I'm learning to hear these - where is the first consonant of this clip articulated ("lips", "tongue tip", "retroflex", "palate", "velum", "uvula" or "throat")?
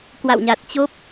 velum